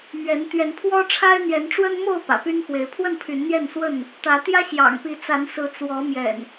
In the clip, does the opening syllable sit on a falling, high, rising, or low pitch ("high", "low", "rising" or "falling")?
rising